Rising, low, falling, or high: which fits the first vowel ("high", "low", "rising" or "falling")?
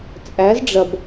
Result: rising